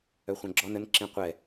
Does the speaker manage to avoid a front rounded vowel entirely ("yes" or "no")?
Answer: no